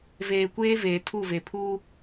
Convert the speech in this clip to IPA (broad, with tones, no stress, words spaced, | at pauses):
veː˨kʷeː˦veː˨ tʰu˦˨ve˨pʰuː˦